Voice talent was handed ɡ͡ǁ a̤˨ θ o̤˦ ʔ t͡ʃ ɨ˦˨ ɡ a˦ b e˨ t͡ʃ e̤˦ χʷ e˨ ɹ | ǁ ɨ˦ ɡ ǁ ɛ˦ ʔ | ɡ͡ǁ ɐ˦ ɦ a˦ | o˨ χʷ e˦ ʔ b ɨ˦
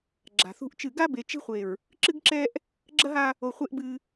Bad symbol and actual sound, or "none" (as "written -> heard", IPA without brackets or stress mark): o̤˦ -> ṳ˦